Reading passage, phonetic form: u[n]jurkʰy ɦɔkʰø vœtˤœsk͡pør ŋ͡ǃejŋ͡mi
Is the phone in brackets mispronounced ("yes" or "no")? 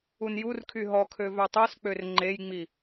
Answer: no